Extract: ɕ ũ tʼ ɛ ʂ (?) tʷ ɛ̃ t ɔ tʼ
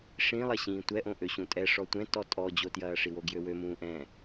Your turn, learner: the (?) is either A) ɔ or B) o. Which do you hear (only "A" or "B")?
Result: A